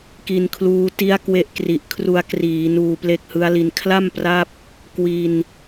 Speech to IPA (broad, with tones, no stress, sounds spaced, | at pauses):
k i˧ n kʰ l uː˦˥ t i˦˥ a̯ k w e˦˥ ʔ k r i˨˩ ʔ kʰ r u˧ a̯ k r iː˩˦ n uː˧ p l e˦˥ k̚ h ɯ˦˥ a̯ l i˧ n kʰ l a˥˩ m p r a˦˥ p̚ | k w i˧ n